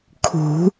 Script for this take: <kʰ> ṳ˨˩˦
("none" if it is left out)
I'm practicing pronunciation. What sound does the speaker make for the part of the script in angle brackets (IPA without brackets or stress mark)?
kʰ